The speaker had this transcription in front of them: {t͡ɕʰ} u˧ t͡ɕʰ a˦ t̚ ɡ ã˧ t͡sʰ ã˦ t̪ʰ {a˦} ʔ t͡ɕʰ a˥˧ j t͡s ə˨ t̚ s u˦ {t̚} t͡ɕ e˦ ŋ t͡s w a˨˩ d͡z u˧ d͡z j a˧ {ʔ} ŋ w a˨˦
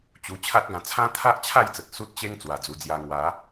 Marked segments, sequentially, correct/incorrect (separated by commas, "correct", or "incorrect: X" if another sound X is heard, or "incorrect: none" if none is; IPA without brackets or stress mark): incorrect: t͡ɕ, correct, correct, incorrect: none